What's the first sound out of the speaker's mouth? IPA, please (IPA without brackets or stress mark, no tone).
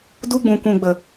d